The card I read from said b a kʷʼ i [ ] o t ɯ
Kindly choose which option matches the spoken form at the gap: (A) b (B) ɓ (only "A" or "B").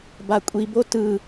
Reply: A